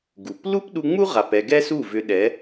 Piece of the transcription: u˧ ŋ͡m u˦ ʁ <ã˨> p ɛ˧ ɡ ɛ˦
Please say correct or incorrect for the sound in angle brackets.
incorrect